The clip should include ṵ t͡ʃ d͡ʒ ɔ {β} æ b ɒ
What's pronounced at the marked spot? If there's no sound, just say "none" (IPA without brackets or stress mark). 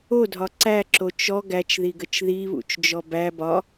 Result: b